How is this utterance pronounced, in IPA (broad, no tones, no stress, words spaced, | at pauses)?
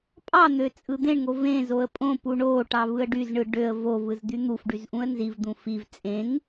pʼɑn̪ø t͡sʼɯd̪ẽɳŋo vẽ zoə̯pʼõpu ɳoʈɑ vɯə̯ɖyzɳɯ ɖøə̯ vovɯz d̪yn̪ufɖyz ʔũə̯nzivd̪ũ fiv t͡sʼẽŋ